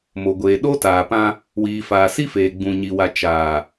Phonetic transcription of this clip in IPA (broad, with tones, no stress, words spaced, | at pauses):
mo˨ ɡʷeː˨ ɗo˦taː˨pã˦ | wiː˨faː˨si˦ feː˨ ɡ͡bũ˨ɲi˨wa˨ t͡ʃaː˨